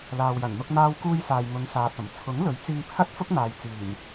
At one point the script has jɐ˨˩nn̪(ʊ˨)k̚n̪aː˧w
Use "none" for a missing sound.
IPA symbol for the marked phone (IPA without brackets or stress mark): ʊ˧